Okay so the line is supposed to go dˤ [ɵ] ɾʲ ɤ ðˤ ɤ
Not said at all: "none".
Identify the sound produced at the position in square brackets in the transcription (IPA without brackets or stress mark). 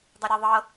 ɵ